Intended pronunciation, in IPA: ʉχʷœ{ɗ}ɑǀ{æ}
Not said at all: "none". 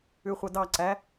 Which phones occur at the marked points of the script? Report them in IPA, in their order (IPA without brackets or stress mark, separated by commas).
d, æ